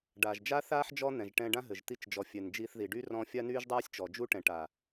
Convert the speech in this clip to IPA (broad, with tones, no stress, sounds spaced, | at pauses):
ɖ aː˨ ʒ d͡ʒ a˦ θ aː˦ ħ d͡ʒ ɔ˦ n̪ ɛ̃˨ ʒ ʈ ɛ̃˧ ɖ ã˦ ɦ ɘ˨ ʒ t̪ i˧ t͡ʃ d͡ʒ ɔ˨ fʲ ɛ˨ n d͡ʒ iː˧ θ ð i˨ ɖ y˦ r ɔ̃˧ fʲ a˦ n yː˦ ʒ dˤ aː˦ sʲ t͡ʃ ɔ˨ d͡ʒ u˦ ʈ ɛ̃˨ ʈ a˨